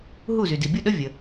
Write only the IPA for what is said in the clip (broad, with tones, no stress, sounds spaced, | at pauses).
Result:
ɦ u˥˩ z y˩ d i˩ bʲ u˥˩ ɗ ə˥ vʲ ə˩